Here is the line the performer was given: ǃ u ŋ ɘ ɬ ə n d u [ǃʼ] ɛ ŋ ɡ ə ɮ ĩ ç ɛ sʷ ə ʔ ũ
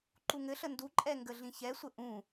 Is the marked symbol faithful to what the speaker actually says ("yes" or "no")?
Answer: yes